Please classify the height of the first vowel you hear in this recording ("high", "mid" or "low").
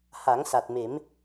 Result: low